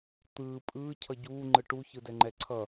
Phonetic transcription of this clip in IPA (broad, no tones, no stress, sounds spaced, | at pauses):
t̪ ɯː pʼ ɯː cʰ ʌ ɟ uː ŋ͡ǃ ɯ ʈ u ç ɯ d ɛ ŋ͡ǃ ɛ ǀʰ ʌ